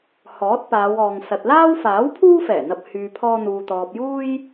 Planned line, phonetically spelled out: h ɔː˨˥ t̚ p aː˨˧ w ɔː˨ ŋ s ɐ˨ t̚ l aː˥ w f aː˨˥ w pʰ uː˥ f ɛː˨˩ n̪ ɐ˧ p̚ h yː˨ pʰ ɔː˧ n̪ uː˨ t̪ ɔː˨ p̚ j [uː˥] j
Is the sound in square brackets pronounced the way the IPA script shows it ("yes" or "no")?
yes